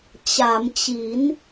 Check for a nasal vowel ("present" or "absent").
absent